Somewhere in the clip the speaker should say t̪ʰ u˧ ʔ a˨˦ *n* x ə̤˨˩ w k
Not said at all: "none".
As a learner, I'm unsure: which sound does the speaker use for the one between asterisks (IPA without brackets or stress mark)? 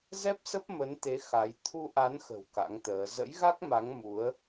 n